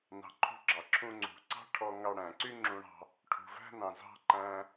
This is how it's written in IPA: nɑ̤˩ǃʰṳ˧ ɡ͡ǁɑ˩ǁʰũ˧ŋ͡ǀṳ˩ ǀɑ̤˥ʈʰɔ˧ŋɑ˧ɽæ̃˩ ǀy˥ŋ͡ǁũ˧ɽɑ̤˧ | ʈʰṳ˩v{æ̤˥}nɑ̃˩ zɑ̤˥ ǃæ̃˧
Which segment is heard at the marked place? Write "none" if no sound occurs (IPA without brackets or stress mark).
æ̤˥